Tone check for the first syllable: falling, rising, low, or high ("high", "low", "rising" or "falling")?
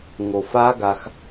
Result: low